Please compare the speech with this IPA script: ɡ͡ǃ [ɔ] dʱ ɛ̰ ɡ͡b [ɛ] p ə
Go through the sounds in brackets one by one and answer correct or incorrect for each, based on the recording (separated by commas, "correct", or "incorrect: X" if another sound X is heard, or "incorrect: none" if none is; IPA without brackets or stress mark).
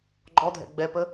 correct, correct